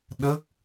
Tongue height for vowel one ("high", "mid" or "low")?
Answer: mid